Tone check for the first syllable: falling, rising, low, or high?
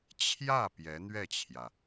falling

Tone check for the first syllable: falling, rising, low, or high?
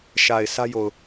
low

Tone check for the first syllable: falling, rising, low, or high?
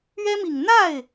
high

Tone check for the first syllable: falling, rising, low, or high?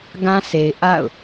high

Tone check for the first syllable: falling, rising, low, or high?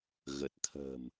low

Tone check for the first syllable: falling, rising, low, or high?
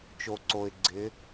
low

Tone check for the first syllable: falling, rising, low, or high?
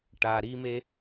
low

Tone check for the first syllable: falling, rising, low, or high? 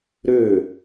falling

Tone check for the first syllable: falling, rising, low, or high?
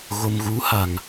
low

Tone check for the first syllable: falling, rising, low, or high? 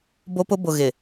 high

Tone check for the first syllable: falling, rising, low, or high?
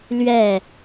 falling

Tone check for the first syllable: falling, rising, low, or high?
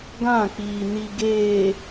falling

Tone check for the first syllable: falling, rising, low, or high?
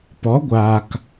rising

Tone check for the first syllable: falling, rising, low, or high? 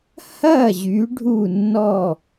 falling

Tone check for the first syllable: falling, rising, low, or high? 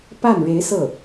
falling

